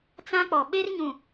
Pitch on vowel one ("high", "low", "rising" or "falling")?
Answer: high